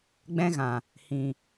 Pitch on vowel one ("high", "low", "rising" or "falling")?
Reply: high